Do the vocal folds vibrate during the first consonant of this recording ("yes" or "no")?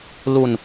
yes